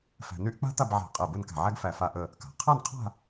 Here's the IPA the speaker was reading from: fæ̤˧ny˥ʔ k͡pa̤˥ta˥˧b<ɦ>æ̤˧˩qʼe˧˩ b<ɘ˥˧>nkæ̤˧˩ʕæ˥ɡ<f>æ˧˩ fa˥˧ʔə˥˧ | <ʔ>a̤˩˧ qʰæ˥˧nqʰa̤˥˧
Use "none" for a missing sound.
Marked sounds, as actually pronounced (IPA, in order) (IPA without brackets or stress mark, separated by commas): ʕ, ɘ˥˧, f, k